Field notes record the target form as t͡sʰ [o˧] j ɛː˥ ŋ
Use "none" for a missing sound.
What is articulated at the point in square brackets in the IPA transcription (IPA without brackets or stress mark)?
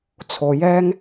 o˧